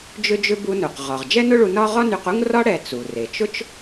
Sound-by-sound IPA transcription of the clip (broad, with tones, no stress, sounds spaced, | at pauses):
d͡ʒ ʏ˥ d͡ʒ ʏ˥ b u˧ n u˩ q ʁ ɒ˩ ʁ d͡ʒ ɛ˥ n ʊ˥ ɭ u˧ n ɒ˥ ʁ ɒ˥ n y˧ q u˥ ŋ r ɒ˥ ɽ ɛ˧ t͡s u˩ r e˩ t͡ʃ ʊ˥ t͡ʃ